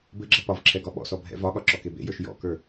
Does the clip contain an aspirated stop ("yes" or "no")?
yes